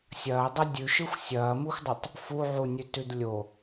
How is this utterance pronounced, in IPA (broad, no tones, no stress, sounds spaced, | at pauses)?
sʲ ɐː dˤ ɐ dʲ ʉ ʃ ɯ xʷ sʲ ɐː m u xʷ dˤ ɯ tˤ | f u ʕ u nʲ ʉ t ʉ d lʲ o